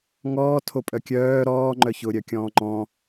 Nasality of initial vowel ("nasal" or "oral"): oral